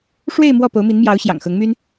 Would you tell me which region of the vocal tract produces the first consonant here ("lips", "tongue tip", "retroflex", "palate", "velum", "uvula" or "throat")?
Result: retroflex